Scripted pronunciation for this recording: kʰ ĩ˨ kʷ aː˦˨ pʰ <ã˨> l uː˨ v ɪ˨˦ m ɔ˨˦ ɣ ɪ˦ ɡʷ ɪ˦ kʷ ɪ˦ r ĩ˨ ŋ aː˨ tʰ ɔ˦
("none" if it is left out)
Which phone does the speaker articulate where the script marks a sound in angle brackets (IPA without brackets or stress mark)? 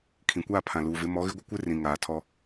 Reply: ã˨